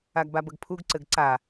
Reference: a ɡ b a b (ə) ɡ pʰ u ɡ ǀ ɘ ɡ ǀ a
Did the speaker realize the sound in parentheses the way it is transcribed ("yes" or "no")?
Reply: yes